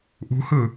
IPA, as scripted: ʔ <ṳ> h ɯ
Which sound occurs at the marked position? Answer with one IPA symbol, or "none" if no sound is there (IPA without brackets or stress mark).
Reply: ṳ